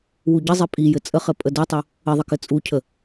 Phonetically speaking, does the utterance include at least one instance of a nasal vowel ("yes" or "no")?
no